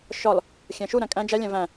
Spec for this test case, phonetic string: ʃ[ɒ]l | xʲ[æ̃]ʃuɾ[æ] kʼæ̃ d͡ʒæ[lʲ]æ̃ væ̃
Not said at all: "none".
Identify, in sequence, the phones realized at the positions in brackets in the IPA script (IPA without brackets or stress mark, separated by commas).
ɒ, æ̃, æ̃, lʲ